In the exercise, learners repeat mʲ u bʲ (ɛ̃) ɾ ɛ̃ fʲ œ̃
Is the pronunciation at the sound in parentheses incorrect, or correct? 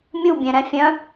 correct